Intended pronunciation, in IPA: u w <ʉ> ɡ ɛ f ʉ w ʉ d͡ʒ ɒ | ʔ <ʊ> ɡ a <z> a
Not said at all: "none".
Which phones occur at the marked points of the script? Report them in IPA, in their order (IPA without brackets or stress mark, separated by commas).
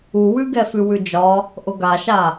ʉ, ʊ, ʃ